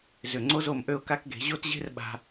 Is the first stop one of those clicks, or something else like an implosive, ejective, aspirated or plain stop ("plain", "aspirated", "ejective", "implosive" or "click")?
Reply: click